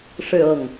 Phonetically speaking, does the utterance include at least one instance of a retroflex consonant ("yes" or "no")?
yes